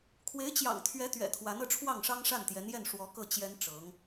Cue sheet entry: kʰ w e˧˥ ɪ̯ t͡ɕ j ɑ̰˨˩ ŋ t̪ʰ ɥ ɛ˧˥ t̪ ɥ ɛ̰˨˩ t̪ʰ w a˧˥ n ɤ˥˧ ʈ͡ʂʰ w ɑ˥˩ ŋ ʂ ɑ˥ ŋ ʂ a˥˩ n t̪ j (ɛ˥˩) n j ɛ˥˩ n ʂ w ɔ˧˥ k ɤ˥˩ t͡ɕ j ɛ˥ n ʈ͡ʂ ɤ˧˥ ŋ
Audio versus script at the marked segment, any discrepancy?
yes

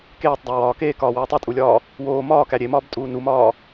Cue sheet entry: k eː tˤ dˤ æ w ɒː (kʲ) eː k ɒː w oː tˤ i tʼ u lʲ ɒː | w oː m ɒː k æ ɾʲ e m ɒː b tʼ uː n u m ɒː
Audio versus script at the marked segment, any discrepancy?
yes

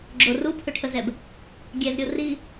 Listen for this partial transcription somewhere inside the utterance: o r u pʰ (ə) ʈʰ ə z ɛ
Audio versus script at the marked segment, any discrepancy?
yes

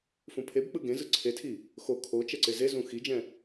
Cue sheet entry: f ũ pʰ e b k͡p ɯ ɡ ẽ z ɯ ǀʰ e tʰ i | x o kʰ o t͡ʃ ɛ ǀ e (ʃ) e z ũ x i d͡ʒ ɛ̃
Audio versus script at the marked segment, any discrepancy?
yes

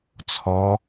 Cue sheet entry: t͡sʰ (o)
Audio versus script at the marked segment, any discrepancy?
yes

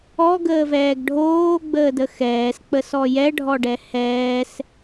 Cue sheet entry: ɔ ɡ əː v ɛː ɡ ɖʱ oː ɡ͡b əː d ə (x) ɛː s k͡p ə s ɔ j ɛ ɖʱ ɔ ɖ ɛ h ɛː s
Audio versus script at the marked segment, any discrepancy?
no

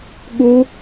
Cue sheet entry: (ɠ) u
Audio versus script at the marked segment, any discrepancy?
no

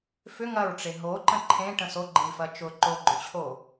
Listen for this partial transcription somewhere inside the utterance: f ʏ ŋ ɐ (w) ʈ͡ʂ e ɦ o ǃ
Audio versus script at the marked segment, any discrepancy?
yes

